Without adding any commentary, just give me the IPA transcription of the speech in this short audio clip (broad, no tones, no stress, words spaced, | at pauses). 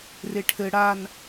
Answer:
reʈʰɘ ɽan